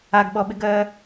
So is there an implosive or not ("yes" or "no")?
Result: yes